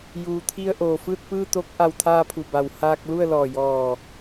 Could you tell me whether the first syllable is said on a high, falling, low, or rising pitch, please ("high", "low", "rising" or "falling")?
low